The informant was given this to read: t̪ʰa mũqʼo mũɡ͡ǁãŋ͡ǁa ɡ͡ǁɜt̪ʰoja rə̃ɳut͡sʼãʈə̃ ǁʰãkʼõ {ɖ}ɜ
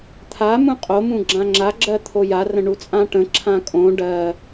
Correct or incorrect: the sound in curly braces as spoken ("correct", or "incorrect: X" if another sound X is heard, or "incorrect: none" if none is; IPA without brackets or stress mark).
correct